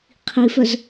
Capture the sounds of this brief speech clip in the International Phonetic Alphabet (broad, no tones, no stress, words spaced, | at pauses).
qʰifœz